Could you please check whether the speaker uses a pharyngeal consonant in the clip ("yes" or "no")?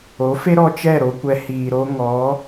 no